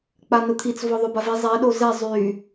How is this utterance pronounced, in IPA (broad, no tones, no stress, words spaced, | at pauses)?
k͡panʊt̪ʰit͡s vɔðˤøbavi zˤɛ ɗozɛ zˤy